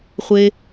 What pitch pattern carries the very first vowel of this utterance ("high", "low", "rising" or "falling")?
high